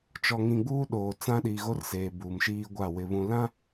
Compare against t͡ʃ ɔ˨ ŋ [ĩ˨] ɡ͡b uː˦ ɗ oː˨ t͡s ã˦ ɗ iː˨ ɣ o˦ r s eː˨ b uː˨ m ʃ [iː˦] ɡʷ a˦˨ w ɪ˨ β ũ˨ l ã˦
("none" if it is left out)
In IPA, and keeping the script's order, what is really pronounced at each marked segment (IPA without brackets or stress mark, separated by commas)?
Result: ĩ˨, iː˦